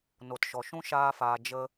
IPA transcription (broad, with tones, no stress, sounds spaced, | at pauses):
n o˨ t ʃ ɔ˨ ʃ ũ˦ ʃ aː˦ f aː˧ d͡ʒ ə˦